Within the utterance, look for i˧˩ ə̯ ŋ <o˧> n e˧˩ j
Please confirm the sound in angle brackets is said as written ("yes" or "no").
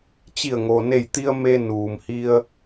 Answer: no